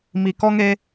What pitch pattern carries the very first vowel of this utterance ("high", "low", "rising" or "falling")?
low